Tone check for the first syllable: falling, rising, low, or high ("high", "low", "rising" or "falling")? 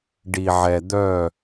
low